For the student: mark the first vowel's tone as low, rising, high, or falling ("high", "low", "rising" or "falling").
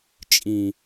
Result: low